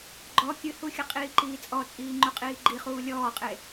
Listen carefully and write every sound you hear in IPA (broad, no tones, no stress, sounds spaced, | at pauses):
ɡ͡ǃ ɔ kʲ ɨ h u xʲ ə qʼ iː ǃ iː t͡sʼ ɔ t͡sʼ iː ŋ͡ǃ u qʼ iː ɡ͡ǃ i χ uː lʲ ɔː qʼ e